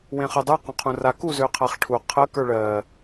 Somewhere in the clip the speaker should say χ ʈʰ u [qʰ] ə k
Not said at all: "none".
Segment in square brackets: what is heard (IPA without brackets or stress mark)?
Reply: qʰ